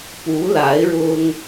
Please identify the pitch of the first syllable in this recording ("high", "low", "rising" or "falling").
rising